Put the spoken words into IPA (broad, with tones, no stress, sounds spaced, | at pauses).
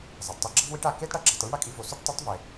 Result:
zˤ ɐ˩ d tˤ u˧ ɡ͡ǁ ɐ˥ v w i˧˥ ʈ a˩ k e˥ d ɽ ɐ˧˥ ɡ͡ǁ ɐ˩˧ tˤ i˧˥ ɳ ɽ ɐ˩ kʼ i˧ v o˩ s ʉ˥ ʈ tˤ ʉ˧˥ tˤ v e˩